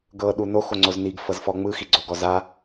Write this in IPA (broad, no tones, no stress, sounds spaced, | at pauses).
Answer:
ɡ ɤ ɗ u n o x o ŋ͡ǀ o z n i ɡ f ɤ z f ɔ ŋ͡m ɯ x i ɡ͡ǀ o ɡ ɔ z a